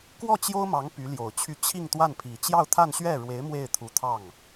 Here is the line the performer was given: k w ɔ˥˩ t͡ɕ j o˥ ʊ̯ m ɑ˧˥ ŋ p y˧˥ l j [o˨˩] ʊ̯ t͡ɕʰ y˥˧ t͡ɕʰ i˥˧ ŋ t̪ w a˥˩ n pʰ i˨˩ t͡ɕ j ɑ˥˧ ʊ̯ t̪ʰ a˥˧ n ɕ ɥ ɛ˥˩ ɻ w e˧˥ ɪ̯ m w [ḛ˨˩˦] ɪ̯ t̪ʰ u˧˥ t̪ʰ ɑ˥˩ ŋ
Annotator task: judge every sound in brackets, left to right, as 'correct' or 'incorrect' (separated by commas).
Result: correct, incorrect